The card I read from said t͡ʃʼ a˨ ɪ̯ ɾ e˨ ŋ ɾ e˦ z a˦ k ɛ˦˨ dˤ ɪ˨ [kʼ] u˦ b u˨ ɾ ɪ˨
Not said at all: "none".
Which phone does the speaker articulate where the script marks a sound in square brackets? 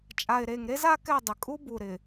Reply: kʼ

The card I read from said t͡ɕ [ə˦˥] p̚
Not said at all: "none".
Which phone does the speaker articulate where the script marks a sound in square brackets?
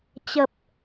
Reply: ə˨˩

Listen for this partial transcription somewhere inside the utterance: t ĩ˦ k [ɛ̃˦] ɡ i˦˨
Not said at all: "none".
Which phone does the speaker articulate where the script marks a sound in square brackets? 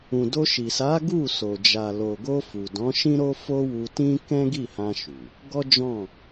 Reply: ɛ̃˦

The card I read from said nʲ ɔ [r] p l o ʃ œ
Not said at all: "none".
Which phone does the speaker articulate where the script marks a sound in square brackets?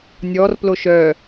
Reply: r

